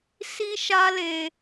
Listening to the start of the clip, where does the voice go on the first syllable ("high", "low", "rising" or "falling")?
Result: high